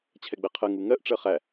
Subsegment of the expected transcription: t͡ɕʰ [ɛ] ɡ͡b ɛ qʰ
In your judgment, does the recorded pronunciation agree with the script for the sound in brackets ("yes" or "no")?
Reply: yes